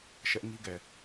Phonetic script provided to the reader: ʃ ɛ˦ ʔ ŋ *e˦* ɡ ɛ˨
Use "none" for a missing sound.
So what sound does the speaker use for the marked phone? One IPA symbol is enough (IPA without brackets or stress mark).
i˦